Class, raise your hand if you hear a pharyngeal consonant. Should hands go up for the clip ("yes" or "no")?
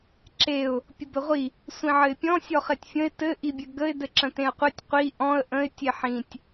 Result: yes